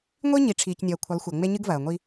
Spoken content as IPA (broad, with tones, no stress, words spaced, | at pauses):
ŋʷi˦ ɲi˨ʈ͡ʂʰiː˨cnʲɐː˨ kʷʰə˨˦lˠxʷɐ˨ŋ͡me˦ ɲɨ˦ɡvɐː˨ŋʷi˦